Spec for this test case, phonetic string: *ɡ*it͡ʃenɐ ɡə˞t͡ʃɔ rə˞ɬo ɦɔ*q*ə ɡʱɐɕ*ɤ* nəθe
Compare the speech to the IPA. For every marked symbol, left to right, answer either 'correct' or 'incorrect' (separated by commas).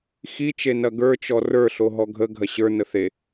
incorrect, incorrect, incorrect